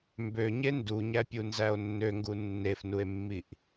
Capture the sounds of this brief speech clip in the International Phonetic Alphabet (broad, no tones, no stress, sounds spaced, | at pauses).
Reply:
m b ø ɲ e n d u ɲ æ pʲ u n z æ o̯ nː ø ŋ ɡ u nː e f n u e̯ mː i ʔ